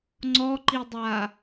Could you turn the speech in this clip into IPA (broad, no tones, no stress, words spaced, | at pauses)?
ŋ͡ǀɔǃidˤa